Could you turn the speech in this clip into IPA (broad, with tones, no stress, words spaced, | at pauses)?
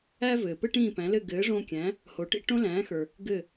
æ˥vɘː˩ pɘ˥ʈĩː˥˩pæ̃˩˥lɘ˥˩ ɡɘː˩˥ʐõ˧kʲæ̃˩˥ | ho˩˥ʈḭ˧ ʈõ˥ læ̃ː˩˥xə˞˩ | ɡɘ˥˩